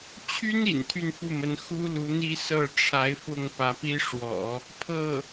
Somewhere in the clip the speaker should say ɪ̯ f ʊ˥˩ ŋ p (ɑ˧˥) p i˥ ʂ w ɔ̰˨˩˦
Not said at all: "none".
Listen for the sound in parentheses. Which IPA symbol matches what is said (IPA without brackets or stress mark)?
ä˧˥